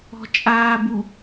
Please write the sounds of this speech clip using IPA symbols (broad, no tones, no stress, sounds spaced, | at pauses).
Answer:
ɔ̤ t͡ʃʼ aː b u